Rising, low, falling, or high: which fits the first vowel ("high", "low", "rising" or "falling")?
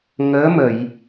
rising